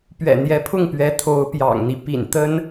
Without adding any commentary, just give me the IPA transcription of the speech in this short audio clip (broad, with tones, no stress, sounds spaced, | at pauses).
p ɥ ɛ̰˨˩ n̪ j ɛ˧˥ pʰ ʊ˥˩ ŋ p ɥ ɛ˧˥ t̪ʰ o˧˥ ʊ̯ p j ɑ̰˨˩ ŋ n̪ i˦ p ḭ˨˩ n t̪ ə˥ n